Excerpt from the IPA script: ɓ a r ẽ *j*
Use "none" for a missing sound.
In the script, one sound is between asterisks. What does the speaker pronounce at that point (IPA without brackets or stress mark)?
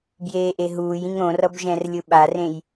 j